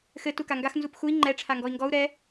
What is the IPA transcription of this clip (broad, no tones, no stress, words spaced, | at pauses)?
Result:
xɘ tukaŋɡax nzupxui̯ ŋ͡ǃɛ ʈ͡ʂʰaŋɡɔi̯ŋɡɔu̯ ɾɛ